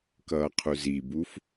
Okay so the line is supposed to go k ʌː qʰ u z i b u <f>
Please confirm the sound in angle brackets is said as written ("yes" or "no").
yes